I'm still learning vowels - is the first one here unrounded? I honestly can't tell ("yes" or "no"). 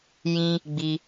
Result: yes